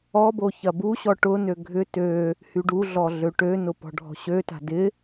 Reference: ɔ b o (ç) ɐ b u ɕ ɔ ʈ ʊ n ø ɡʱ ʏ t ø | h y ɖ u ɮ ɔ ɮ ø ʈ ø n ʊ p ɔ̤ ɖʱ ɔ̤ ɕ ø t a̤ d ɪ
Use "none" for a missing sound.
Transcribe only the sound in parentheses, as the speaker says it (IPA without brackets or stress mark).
ç